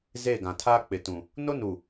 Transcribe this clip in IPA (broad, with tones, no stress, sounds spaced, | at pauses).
z e˦˨ ɡ ã˨ tʰ aː˦ k͡p ɪ˨ t ũ˨ | n o˦ n u˨